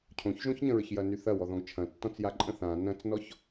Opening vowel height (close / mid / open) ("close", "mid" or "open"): mid